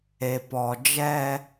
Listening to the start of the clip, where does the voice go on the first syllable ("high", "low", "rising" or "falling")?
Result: low